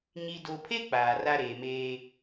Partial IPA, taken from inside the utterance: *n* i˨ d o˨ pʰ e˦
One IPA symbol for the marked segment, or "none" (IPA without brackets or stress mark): ɲ